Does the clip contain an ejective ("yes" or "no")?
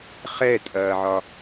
yes